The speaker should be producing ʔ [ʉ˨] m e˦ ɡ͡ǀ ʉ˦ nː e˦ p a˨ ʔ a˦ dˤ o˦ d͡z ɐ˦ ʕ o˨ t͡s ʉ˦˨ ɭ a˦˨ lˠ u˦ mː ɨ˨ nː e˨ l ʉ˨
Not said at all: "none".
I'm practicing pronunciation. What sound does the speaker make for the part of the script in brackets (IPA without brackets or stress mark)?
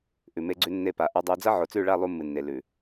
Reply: ʉ˨